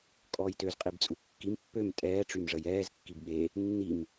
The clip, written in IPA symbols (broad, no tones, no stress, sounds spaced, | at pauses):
kʼ ɔː j t ø z qʼ i b t͡sʼ u kː i m pː ø m tʼ ɛː ʈ͡ʂ y m ʐ ə j ɛː z kː i b ɓ e | nː i m